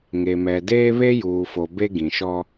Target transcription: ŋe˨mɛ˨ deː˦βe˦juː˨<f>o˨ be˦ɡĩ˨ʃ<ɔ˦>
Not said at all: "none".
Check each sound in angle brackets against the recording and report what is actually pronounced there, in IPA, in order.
f, ɔ˦

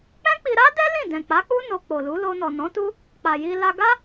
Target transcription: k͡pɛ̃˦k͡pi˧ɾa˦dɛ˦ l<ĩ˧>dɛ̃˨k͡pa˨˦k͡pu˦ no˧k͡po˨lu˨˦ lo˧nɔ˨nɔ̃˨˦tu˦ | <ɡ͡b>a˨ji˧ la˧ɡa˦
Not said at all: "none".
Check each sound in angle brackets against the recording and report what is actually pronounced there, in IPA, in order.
ĩ˦˨, k͡p

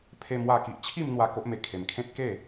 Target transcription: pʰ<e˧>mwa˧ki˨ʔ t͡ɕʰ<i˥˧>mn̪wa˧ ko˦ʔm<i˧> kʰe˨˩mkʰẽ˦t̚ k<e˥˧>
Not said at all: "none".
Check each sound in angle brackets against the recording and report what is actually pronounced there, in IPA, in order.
e˧, i˥˧, e˧, e˥˧

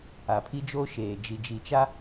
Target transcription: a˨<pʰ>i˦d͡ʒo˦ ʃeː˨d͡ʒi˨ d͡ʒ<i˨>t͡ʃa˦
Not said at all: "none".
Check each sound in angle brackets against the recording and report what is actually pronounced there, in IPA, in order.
pʰ, i˨

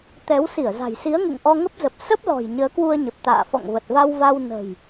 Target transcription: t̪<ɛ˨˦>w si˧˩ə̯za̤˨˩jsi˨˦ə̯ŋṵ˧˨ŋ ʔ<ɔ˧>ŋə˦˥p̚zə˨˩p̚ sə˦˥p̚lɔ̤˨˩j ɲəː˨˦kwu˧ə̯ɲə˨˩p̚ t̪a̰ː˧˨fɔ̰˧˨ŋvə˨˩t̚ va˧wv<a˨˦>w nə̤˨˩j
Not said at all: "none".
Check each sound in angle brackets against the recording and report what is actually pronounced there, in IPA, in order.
ɛ˨˦, ɔ˧, a˧

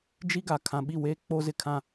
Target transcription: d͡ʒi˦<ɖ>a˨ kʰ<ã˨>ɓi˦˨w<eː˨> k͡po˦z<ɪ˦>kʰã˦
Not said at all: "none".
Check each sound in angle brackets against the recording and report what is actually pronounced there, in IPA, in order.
ɡ, ã˨, eː˦, ɪ˦

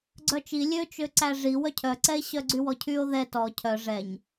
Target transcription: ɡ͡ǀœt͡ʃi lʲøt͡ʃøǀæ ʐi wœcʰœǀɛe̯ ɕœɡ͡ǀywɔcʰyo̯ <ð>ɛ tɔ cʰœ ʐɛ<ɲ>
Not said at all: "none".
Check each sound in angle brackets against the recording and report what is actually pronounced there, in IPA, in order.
ð, ɲ

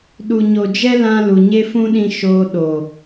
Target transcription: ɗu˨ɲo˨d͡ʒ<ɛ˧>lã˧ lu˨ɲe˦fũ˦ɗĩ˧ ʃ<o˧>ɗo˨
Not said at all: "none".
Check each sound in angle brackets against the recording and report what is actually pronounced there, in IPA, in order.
ɛ˦, oː˧

